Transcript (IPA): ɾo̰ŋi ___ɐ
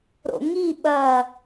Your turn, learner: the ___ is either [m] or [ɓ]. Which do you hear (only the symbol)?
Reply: ɓ